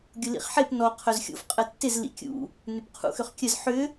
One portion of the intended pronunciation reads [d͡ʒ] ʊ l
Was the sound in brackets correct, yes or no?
no